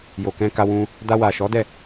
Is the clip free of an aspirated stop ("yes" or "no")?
yes